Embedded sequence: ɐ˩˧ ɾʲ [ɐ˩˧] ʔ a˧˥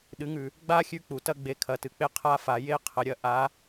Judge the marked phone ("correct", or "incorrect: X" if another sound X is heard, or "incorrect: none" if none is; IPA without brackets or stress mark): incorrect: ɐ˧